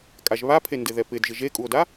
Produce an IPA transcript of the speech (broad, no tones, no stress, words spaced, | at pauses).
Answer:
kʼaʒβapʰendɪ ðɛpɪdʒɪ ʒekʼuo̯da